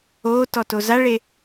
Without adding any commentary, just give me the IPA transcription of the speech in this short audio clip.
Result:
oːtɔto zaɭe

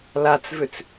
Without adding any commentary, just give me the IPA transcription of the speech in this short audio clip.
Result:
lat͡svʏt͡s

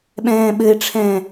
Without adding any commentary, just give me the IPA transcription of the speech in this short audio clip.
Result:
ɓɛ̃ːɓɘɪ̯ʈ͡ʂʰɛ̃ː

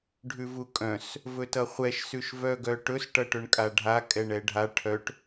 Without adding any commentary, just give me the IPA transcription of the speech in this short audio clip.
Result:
ɖʱʉvukʼœ̃s | vɵtʌχʷɛʃ sʉʃvœɡœʈɵs ʈʌʈɵɳkʼaɖʱa kʼɛɳɛɖʱa ʈʰœʈ

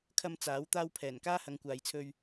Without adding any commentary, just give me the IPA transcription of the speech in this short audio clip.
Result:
kʰɐ˧m t͡saː˨˥w t̪aː˧wpʰɛː˨˩n kaː˥hɐ˨˧ŋkʷaː˨jt͡sʰɵ˧ɥ

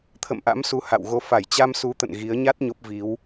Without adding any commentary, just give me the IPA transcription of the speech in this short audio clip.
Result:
t̪ʰə̰˧˨mʔa̰˧˥msu˨˦ ha̰˧˨wɣo˧ fa˧˩jt͡ɕa˧msu˨˦t̪ə̰˧˨n ɣi˨˦ə̯ ɲa˦˥t̚ ɲo˦˥p̚vi˨˦w

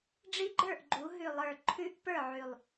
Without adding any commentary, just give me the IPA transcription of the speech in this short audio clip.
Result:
ɖ͡ʐi˦˥ɡ͡ǃə˞˥˨ʔɡ͡ǃu˩˧ ɦʉ˨˩lˠə˞˨˩ ǃʰʉ˦˥ʔpə˞˥˨ʕʉ˨˩lˠ

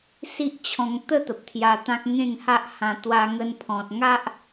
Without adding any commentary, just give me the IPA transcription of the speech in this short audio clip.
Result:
si˦ʔt͡ɕʰɔ̃˧ŋ t̪ə˥˧ t̪ə˨p̚t̪ʰja˧t̪ã˦k̚ ŋẽ˥˧ŋha˦ʔhã˧ t̪wa˧ŋə˧npʰɔ̃˨t̚ ŋa˦ʔ

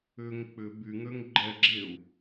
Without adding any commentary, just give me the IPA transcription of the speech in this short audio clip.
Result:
ʏŋ k͡pʏ byŋøŋ ɡ͡ǃɛɡ͡ǁeu̯

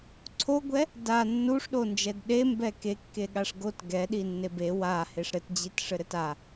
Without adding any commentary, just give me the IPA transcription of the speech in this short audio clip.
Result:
ǀʰoɡʷɛ | da nːuʂɗond͡ʒɛd ɗembɛ kekːeɠaʂ ɡot ɡɛɗinːe be waheʂ ɾɘtd͡ʑitʂɘɾɘt a

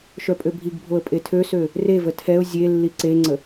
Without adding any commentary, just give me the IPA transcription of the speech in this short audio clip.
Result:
ʃœpʼøbʱiɡbʱoə̯ pʼetʰøsø | revə tʰɛʊ̯ zʲelːi ǀeŋ͡ǀə

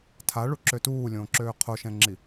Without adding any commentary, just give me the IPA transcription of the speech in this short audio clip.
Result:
tʰaɭuǁø tuːlʲõːǁøː qʰoʃɛ̃ŋ͡ǁi

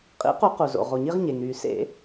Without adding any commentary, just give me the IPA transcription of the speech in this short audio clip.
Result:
qʼḭ˨˩˦qu˨˩˦qu˩ zo̰˩ʁo˩ɲi˧ʁɲe˩ŋ ɾy˨˩˦sḛ˨˩˦

